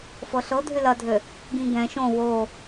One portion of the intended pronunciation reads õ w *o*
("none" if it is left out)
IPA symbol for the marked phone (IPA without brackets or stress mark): o